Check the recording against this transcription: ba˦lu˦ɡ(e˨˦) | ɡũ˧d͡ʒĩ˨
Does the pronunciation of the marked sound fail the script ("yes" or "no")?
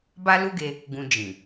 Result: yes